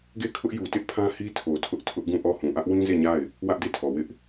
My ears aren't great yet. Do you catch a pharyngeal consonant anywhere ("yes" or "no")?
no